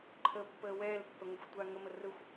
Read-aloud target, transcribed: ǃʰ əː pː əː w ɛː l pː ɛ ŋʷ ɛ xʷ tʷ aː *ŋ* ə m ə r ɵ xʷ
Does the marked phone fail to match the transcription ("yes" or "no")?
no